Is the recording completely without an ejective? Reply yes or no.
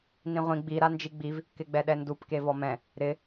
yes